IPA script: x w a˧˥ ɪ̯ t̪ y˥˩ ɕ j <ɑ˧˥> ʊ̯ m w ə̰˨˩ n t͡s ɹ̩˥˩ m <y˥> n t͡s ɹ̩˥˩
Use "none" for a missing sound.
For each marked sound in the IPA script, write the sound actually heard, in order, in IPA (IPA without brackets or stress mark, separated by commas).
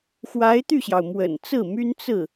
ɑ˩, y˥